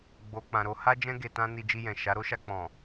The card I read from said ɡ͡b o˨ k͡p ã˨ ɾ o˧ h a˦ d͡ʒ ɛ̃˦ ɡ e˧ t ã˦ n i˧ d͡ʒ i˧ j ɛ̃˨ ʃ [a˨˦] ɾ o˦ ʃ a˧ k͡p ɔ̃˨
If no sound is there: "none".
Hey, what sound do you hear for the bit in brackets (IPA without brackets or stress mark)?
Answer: a˨˦